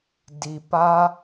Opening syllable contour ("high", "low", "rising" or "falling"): low